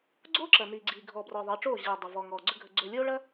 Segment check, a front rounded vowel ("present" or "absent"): absent